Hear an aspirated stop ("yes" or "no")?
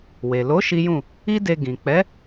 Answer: no